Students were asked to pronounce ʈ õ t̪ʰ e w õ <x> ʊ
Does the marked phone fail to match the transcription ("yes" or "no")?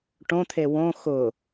no